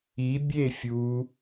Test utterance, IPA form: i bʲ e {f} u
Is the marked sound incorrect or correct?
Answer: incorrect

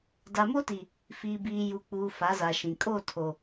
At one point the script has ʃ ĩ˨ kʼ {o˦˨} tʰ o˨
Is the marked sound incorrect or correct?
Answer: correct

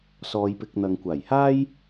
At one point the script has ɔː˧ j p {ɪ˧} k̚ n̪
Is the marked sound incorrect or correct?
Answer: correct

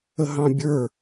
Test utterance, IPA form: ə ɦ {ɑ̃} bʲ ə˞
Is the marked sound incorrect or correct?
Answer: correct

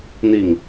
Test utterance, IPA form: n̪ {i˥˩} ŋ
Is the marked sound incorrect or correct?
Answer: correct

